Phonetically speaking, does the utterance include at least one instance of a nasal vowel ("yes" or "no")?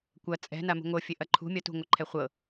no